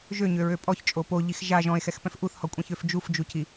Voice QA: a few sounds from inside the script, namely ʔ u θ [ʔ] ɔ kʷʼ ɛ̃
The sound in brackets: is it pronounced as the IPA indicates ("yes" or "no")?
no